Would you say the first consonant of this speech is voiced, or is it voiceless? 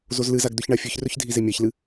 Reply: voiced